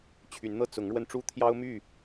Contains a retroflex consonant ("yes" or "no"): yes